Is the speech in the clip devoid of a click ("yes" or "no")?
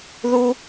yes